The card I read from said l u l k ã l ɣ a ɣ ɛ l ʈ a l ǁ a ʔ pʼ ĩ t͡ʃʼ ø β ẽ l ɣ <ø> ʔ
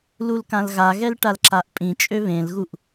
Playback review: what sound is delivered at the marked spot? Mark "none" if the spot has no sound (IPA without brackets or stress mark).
u